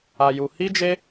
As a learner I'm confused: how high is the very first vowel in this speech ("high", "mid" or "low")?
low